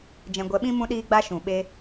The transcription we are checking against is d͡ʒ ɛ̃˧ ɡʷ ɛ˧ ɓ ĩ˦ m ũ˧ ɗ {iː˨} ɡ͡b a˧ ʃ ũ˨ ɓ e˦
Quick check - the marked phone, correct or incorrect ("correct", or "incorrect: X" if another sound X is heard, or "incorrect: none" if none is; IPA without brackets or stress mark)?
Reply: incorrect: iː˧